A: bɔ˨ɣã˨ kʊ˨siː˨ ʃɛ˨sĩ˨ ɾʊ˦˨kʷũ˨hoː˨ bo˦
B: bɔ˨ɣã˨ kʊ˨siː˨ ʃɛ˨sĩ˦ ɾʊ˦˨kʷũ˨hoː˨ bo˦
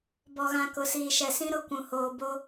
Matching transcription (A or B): B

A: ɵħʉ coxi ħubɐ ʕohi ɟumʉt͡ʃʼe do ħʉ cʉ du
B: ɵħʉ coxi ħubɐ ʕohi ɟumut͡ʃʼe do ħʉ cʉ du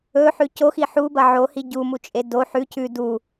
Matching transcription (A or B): B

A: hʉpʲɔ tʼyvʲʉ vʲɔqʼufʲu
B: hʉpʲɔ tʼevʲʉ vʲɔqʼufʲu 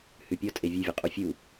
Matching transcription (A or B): B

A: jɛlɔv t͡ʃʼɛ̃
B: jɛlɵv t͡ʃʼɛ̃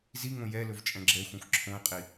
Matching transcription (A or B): B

